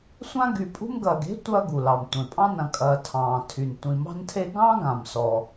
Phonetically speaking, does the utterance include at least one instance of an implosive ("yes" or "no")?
no